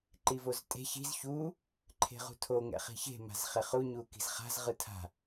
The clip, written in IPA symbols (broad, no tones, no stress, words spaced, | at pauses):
ǃivoztʼe̤ çi̤z çu | ǃʰe̤ʁṳtʰo ŋɛ̰χi̤çe̤ ma̤zχeχu ɲuki̤zχa̤z ʁɯtʰa̤